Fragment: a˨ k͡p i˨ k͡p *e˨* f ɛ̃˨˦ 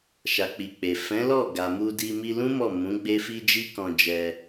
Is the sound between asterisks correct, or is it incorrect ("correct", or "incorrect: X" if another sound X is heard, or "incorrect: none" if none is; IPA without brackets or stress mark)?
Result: correct